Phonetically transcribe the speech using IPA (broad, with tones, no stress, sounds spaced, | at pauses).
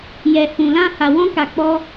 j ɛ˨ h ũ˨ l ã˧ h a˨ w ɔ̃˧ k a˨ k͡p ɔ˧